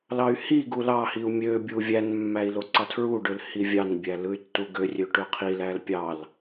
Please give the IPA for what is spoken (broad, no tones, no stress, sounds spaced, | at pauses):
l ɑ y̯ h i ɡ u l ɑ h i u̯ mʲ ø bʲ u vʲ æ n mː æ i̯ l o ǀ ɑ tʰ ɹ u ɖ ø l h i vʲ ɑ n bʲ æ l ɯ y̯ tː u ɡ ø rʲ ø ʈ ø qʰ i l æ l pʲ ɑ l